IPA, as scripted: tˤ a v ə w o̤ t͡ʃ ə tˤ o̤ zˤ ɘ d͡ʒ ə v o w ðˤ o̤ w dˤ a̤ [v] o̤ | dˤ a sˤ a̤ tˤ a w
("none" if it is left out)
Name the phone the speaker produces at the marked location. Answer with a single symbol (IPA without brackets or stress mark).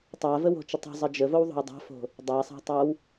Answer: f